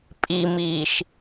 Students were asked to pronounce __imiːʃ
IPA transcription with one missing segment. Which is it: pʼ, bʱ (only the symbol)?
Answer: pʼ